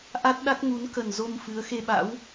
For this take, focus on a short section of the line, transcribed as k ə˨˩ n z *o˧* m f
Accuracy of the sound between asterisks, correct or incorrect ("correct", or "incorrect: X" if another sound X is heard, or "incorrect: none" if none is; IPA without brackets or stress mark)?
correct